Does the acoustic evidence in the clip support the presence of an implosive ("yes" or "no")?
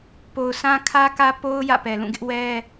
no